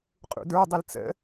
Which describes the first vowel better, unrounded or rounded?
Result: rounded